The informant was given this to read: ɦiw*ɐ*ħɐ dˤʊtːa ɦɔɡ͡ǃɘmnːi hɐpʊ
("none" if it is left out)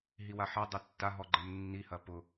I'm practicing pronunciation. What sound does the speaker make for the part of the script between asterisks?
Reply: a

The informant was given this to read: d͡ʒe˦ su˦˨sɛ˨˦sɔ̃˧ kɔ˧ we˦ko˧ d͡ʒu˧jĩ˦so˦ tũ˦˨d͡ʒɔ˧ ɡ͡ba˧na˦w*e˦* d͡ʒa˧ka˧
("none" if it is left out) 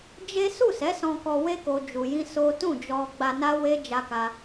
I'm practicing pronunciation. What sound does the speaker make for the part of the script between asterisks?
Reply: e˦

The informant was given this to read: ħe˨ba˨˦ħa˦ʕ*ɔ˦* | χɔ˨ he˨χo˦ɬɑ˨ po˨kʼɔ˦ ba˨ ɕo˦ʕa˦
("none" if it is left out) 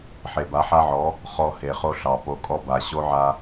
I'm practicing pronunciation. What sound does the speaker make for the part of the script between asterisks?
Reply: ɔ˨˦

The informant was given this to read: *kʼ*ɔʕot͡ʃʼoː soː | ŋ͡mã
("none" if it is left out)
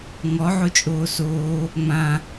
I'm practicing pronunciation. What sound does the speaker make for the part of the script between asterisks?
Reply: ŋ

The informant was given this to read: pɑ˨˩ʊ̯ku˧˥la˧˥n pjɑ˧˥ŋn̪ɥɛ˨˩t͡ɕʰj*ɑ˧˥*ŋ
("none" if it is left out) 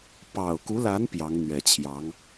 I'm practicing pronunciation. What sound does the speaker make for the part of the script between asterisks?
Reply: ɑ˧˥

